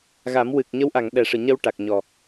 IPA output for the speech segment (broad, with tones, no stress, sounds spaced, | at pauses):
ɣ a˨˩˦ m w ɨ˨˩ k̚ ɲ ə˧˥ w ʔ a˨˩˨ ŋ ɗ ɛ˨˩˦ ʂ ɨ˨˩˨ ɲ ə˧ w ʈ a˨˩ k̚ ɲ ɔ˨˩